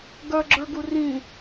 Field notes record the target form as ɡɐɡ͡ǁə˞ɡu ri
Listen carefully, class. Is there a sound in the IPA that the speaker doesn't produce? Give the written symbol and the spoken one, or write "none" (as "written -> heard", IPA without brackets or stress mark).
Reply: i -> ĩ